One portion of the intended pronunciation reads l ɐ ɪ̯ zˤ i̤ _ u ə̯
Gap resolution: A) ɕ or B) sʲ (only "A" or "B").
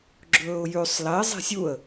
B